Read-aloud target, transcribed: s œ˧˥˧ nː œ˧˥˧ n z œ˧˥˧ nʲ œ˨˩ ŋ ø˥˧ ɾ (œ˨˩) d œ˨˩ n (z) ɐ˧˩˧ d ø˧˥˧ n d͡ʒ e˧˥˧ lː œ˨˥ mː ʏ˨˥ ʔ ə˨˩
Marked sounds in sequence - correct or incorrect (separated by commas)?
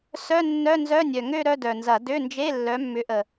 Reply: incorrect, correct